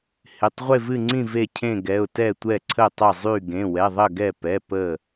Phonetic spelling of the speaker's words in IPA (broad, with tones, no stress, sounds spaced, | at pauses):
h ɪ˩˧˩ tˤ ʁʷ e˧˩ v ɨ˧˩ ŋ͡ǀ ĩ˧˩ v e˧˩ cʰ ẽ˧˩ ɡ ɛ˩˧˩ ʊ̯ t ɛ˧˩ tʷ ɛ˧˩ ǀʰ ə˧˩ tˤ ə˧˩ zˤ y˧˩ ɡ ẽ˩˧˩ w ɛ˩˧˩ ðˤ ə˧˩ ɡ ɛ˧˩ p ɛ˩˧˩ p ə˧˩